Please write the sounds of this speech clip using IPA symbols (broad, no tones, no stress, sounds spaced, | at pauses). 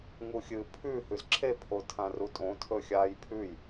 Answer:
ŋ u xʲ ɨ pʰ ʉ h ʉ z ǁʰ e pʰ o tʰ ã r u tʼ õ tʰ ɵ xʲ aː j pʰ ʉ j